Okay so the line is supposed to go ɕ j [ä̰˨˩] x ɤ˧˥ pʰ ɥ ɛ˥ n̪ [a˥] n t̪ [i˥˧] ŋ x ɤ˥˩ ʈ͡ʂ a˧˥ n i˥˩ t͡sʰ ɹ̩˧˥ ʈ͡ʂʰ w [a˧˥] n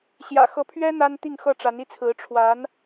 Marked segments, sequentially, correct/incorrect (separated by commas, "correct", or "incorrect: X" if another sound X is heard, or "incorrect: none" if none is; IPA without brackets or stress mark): correct, correct, correct, correct